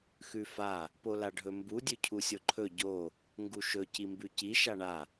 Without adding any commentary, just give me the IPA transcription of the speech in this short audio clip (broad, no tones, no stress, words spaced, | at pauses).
xʉfa | polaɖʱɵmbu dʲʉcʰusʲoǃʰɵ ɟo | ŋɡuʃɵ cimbʉci ʃaɳa